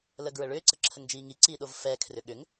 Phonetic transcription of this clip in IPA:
l ə ɡ ɹ ə ɭ ʏː ǀ ə ǁʰ ə ŋ d͡ʒ iː ŋ i ǀ iː ɗ o v f ɛː kʰ r ʏ ɠ ʏ ŋ

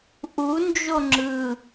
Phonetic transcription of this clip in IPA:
ʔ u n d͡ʒ o ŋ͡ǁ ɯ

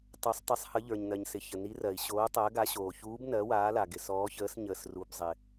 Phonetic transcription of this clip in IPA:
tˤ o˨˦ sˤ tˤ ɪ˨˦ sˤ h ə˨˦ ʎ ə˞˩ ɲ n ɜ˩ ɲ s ɪ˩ ç ə˩ n i˨˦ r ɜ˩ i̯ ɕ oː˨˦ tˤ ɜ˨˦ ɡ a˨˦ ɕ oː˩ ç uː˨˦ b n ɜ˨˦ w aː˨˦ l a˩ ɡ ɪ˩ s ɔː˨˦ ç əː˨˦ s ɲ əː˩ s r u˩ b zˤ ɪ˩

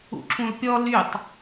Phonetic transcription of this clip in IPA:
ṵ ǁ ũ l pʲ ɔ l y tˤ

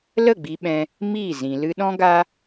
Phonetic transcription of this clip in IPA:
l ə˦˨ ɡ͡b i˧ ɓ ɛ̃˧ | m i˦˨ z ĩ˨ l ɨ˧ ɗ ɔ̃˦ ɡ a˦

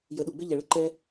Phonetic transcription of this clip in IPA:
j ə˨˦ ɗ u˨ ɡ͡b ʏ˦ ʎ ɛ˨ ɭ ə˦ ǃ ɛ˦

